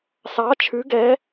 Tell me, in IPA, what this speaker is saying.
sɑ˧˥t͡ʃʰʉ˧˥ɡɛ˧˥

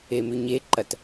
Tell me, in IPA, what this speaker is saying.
emʉɲeǃɐt

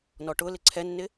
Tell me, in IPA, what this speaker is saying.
nɔʈʊlɪ ǀʰɛnːɪ

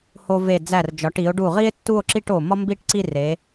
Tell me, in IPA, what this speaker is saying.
ho˧ve˧˩ d͡zæ˧˩rd͡ʒɒ˩˧ʈi˩˧o̯ɖu˧˩ ʁi˥e̯tːu˥˧o̯ǁi˥˧ʈ o˧˩ mɒ˥mbi˥˧ʈǀi˥˧ re˩˧

